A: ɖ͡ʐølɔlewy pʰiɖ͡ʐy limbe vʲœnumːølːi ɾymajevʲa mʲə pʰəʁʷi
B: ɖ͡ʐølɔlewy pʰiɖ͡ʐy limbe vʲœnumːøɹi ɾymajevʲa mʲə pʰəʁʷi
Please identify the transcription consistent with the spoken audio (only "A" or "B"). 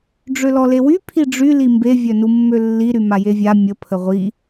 A